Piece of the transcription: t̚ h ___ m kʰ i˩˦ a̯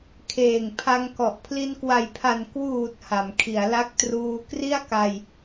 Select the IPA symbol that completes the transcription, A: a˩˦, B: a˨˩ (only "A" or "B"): A